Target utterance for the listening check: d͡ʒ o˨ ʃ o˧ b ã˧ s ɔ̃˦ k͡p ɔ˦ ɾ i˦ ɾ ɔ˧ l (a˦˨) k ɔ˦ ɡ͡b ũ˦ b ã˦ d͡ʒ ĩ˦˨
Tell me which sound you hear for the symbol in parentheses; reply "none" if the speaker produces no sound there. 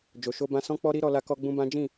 a˦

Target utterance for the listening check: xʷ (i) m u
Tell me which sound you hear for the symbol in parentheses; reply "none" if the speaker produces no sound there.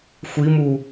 i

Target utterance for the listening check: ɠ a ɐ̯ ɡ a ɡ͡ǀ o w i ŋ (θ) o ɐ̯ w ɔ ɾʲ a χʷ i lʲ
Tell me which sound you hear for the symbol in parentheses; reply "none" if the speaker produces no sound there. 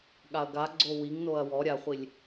n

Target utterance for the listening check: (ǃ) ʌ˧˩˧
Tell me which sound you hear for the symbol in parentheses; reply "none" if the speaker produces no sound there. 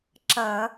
ǁ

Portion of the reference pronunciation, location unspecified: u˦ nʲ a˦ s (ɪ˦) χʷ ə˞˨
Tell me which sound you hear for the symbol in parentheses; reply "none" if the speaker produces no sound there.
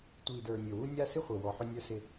ɪ˦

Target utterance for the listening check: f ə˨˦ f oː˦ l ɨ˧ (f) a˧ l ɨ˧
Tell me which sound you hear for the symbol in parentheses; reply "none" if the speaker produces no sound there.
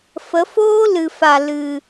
f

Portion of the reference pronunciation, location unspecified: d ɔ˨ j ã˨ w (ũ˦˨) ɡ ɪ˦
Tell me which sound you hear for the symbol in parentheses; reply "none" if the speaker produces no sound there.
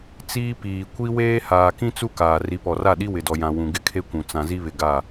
ũ˨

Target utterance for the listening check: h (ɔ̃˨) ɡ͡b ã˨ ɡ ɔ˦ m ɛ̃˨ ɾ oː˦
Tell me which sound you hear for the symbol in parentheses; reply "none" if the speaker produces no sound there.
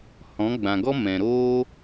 ɔ̃˨˦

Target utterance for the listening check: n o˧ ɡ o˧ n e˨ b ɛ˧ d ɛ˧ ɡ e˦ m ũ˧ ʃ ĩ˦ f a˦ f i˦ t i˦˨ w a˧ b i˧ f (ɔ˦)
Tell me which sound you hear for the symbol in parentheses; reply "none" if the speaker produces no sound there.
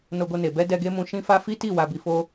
o˦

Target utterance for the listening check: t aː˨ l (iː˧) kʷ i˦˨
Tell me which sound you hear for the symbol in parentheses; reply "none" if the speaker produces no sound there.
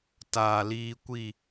iː˧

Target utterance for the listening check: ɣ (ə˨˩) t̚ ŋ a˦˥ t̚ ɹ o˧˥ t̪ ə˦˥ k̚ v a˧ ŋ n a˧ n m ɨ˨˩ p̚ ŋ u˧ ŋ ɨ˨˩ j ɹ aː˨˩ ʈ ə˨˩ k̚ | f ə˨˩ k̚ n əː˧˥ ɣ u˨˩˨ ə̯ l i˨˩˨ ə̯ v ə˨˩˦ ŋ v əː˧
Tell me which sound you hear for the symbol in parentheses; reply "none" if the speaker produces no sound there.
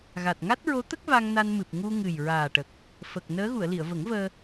a˨˩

